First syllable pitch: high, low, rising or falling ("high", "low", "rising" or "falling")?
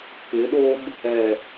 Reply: rising